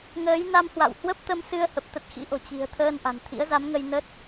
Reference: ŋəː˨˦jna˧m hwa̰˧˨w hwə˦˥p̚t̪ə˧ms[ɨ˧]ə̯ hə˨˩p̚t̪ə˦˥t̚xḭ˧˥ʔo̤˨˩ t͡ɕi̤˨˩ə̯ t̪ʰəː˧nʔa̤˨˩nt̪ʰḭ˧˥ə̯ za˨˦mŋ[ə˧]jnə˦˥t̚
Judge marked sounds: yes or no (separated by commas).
yes, yes